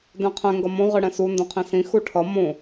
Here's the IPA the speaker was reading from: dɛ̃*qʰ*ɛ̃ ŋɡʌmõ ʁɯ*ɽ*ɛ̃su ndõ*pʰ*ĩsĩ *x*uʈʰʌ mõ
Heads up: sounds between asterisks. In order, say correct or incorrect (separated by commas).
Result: correct, correct, incorrect, correct